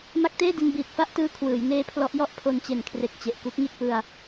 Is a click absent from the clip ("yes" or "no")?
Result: yes